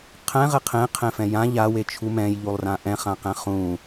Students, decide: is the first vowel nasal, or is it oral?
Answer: nasal